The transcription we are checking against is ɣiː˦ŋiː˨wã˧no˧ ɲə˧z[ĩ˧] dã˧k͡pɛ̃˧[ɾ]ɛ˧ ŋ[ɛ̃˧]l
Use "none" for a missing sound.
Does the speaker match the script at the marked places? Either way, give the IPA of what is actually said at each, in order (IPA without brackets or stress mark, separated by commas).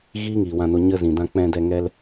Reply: ĩ˨, d, ɛ˧